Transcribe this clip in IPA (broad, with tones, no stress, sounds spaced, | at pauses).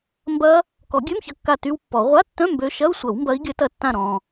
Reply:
m b ɐ˦˥ | k ɔ˨˩˦ ɡʲ ø˧˥˧ m ç ɐ˧˩ kː a˧˩ t y˦˥ w pː ɔ˨˩˦ ʁʷ a˧˥˧ tː œ̃˧˥˧ m b ø˨˦ ʃ ɐ˧˥˧ u̯ sʷ ɐ˨˩˦ w m b ɐ˨˦ i̯ ɡʲ œ˨˦ t ɐ˧˩ tː ã˧˩ ɾ ɔ̃˩